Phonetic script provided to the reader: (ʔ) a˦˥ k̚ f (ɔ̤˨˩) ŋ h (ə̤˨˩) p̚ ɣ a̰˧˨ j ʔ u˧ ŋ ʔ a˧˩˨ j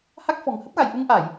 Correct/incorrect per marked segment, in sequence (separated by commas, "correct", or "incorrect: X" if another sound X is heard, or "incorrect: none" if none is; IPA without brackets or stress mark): incorrect: h, correct, incorrect: ə˦˥